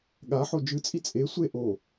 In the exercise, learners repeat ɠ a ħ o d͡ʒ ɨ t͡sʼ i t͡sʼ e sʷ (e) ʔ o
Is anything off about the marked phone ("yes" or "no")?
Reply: no